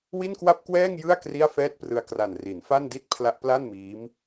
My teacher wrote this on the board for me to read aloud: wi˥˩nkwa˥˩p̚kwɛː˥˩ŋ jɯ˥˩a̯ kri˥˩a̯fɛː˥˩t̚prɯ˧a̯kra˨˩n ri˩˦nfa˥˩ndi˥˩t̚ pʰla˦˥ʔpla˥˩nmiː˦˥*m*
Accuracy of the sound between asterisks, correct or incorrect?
correct